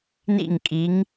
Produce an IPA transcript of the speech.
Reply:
n ḭ˦˨ ŋ kʼ i˨˦ ŋ

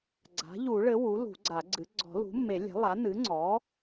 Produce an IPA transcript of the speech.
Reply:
ɡ͡ǀ a̤˩˥ ʎ u˨˩˦ ɭ ɘ˩˥ w u˩˥ l ṳ˨˩˦ ɡ͡ǀ a˨˩˦ ɡ͡ǀ ɨ˩˥ ɡ͡ǀ ɔ̤˨˩˦ l ṳ˩˥ mː e˨˩˦ lʲ ɛ̤˩˥ lˠ a˩˥ n ɨ˩˥ ŋ͡ǀ ɔ˩˥

